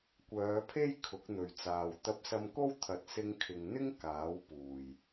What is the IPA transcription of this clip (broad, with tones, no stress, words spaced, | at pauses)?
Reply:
kʷœː˨˧pʰe˥j kʰʊ˨˥k̚n̪ɵ˨ɥt͡saː˨w t̪ɐ˧p̚sɐ˧mko˥wt̪ʰɐ˨˥t̚ sɪ˧ŋkʰɪ˨ŋn̪ɪ˥ŋ kaː˨˥w puː˨˩j